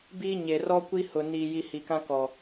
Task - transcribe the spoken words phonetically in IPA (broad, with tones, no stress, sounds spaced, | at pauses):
b iː˦ ɲ e˨ r ɔ˦ kʷ i˦ h ʊ˨ n iː˨ j i˨ h i˨ k ã˦ k ɔ˨